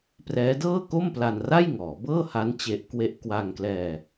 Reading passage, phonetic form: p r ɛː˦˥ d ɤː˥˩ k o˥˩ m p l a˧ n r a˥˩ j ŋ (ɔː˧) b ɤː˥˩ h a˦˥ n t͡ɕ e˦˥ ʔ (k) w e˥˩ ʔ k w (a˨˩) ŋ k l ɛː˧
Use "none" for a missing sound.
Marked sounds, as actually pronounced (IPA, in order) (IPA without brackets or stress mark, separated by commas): ɔː˩˦, k, a˧